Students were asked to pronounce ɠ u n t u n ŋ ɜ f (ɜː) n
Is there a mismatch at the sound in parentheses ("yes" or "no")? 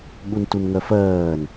no